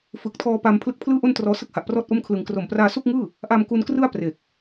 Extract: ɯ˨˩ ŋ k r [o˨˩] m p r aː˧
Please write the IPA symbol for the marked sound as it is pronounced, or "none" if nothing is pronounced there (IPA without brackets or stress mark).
o˨˩